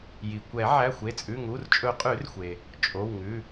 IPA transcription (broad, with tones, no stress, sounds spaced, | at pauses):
j i˩ kʷ ɛ˨˩˦ ʕ æ˩˧˩ xʷ e˩˧˩ t͡sʼ ʉ˩˧˩ ŋ u˩˧˩ r t͡ʃʼ ɵ˨˩˦ qʼ ʉ˨˩˦ r xʷ e˩ | t͡ʃʼ o˩˧˩ w ŋ ʉ˩˧˩